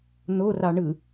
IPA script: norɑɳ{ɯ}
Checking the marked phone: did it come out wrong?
no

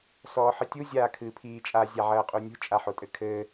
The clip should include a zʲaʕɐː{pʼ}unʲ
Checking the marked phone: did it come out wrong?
yes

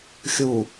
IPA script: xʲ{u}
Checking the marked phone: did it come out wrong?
no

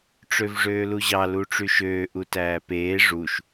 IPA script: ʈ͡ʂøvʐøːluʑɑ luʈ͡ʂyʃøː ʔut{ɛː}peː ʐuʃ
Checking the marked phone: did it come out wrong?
yes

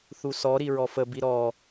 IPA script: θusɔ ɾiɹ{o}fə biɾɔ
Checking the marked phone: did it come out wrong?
yes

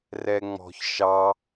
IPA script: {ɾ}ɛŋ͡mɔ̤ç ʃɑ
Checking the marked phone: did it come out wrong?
yes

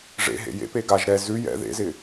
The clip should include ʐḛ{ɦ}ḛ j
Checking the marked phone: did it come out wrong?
no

